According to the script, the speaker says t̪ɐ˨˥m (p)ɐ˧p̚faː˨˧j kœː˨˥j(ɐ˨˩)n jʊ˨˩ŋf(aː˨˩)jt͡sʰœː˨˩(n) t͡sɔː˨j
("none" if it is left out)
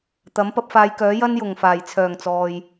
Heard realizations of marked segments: p, ɐ˥, aː˨˩, ŋ

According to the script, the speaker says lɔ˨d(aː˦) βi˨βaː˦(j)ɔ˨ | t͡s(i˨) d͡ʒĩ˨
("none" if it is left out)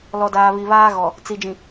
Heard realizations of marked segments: aː˨, ɣ, i˨

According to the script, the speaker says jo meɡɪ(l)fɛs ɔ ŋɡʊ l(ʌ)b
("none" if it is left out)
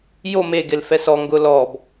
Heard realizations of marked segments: l, ɔ

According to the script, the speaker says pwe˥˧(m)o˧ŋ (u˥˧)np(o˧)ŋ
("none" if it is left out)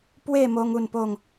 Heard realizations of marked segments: m, u˥˧, o˥˧

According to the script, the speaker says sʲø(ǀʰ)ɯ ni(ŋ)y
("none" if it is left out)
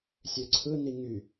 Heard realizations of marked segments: ǀʰ, ŋ

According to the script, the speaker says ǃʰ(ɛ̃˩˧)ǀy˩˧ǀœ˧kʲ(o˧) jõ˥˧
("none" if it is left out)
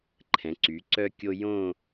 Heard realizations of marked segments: ɛ̃˩˧, o˧

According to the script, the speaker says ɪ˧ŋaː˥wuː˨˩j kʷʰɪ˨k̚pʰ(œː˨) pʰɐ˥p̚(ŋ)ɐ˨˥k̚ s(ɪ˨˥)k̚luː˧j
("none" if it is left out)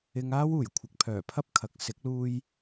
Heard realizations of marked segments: œː˨˩, kʰ, ɪ˨˥

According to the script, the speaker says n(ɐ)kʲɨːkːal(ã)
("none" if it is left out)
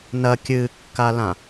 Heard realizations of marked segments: ɐ, ã

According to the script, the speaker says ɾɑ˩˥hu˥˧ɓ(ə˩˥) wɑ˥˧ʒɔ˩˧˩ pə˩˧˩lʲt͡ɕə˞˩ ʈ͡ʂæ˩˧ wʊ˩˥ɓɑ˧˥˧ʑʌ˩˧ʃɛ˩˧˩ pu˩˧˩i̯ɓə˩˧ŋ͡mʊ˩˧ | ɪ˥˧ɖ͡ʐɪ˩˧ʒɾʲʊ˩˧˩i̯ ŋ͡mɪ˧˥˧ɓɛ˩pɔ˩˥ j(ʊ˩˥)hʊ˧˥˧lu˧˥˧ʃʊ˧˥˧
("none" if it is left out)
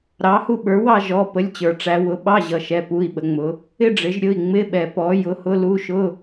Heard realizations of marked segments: ə˞˩˥, ʊ˩˧˩

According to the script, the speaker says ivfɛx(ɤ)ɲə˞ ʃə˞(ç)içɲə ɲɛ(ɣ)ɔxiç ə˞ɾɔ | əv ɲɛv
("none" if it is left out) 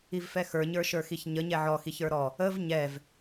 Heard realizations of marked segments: ə˞, x, ʕ

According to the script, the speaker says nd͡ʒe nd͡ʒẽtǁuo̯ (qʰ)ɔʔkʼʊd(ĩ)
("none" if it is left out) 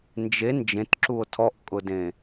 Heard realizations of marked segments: tʰ, ẽ

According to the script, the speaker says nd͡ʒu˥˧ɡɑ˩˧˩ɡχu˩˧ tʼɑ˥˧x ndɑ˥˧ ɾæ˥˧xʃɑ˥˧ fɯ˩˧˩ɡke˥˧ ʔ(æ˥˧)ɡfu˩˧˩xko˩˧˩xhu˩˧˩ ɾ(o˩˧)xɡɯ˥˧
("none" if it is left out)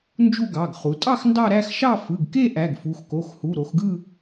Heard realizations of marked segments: æ˩˧˩, o˩˧

